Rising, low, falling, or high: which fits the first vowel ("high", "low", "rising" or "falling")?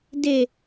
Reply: low